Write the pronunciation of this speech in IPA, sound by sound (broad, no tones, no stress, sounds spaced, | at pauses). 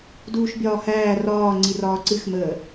d uː ʃ bʲ ɒː h æː r ɒː ŋ͡ǀ i r ɒː ǀ ɨ x m əː